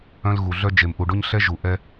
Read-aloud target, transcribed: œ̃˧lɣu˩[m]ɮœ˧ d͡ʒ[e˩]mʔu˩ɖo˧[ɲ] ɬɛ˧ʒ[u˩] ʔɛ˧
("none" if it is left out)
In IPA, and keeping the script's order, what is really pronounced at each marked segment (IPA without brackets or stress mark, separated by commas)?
none, e˩, ɲ, u˩